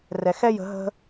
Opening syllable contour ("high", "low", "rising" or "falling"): low